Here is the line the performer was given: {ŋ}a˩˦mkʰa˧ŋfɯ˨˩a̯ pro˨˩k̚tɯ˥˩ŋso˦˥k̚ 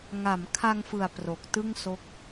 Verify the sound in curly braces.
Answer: correct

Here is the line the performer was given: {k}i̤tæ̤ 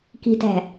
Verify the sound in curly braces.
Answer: correct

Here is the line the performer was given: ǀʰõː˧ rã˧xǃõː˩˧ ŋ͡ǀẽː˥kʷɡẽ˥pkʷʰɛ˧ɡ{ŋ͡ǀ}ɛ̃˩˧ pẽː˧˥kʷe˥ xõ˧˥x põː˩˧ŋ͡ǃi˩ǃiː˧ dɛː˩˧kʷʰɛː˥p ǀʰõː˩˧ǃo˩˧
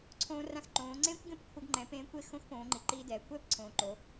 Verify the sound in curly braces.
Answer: incorrect: ŋ͡ǃ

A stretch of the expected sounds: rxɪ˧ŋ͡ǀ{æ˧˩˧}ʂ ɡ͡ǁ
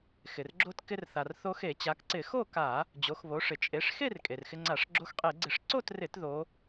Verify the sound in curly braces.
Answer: incorrect: a˧˩˧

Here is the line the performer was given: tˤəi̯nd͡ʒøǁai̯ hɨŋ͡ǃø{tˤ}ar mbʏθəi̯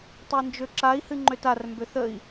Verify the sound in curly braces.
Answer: incorrect: t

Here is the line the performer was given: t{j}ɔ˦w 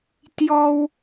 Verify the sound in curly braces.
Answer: correct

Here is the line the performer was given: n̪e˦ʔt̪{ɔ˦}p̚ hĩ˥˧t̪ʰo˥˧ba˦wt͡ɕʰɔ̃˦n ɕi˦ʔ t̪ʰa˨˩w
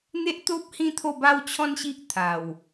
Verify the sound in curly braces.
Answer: incorrect: o˦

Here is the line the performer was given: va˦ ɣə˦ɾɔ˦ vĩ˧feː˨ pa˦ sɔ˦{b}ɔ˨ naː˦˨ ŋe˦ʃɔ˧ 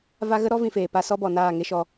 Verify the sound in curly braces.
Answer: correct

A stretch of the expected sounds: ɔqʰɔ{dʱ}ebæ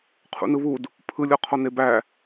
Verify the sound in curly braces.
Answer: incorrect: n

